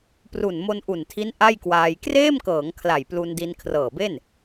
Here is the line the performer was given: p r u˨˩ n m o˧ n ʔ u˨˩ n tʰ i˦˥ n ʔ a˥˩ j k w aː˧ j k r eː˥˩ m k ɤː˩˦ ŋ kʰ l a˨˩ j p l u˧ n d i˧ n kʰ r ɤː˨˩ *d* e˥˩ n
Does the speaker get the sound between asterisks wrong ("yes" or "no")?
yes